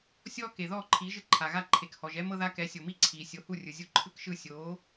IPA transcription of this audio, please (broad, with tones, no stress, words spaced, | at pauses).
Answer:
sʲɔː˥ ke˩ðɔː˥˩ǃʰiː˩˥ ʒɯ˥˩ǃʰa˩ ɣa˥˩ǃʰe˩k hɔ˩ʒɛ˥ mɤ˥ða˥ kɛ˩˥sʲo˩mi˥ ǀʰiː˩sʲo˩˥hu˥˩rʲɯ˩ zʲu˧ǃʰɯ˥kʃɯ˥˩ sʲoː˩˥